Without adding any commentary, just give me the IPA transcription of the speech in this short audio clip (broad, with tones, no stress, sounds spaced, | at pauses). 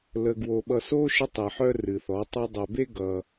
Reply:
l ə˨ ɡ w o˨ ɓ ʌ˨ s o˦ ʃ ə˦ tˤ ɨ˨ ħ œ˦ r ɨ˨ θ ɔ˨˦ tˤ o˦ dˤ œ˨ b e˦ ɡ ʌ˦